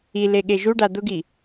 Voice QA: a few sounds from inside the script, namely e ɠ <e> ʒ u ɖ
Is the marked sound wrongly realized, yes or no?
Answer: no